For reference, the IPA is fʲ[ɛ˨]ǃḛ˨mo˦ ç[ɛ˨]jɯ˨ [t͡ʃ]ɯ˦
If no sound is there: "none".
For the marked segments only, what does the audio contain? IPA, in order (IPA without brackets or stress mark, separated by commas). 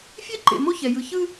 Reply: ɛ˦, ɛ˨, ç